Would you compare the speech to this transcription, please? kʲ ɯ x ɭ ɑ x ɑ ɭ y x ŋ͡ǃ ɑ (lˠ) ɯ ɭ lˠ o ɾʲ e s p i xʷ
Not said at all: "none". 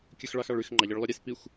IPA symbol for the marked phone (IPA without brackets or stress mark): ʎ